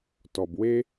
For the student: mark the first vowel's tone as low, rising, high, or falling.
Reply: low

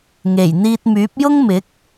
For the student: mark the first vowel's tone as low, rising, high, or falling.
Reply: low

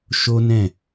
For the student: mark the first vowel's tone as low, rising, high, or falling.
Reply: high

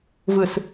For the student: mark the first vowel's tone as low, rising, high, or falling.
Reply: low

